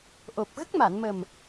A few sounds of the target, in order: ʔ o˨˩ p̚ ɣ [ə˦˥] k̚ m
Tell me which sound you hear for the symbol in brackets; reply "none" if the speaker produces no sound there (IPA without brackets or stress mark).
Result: ə˦˥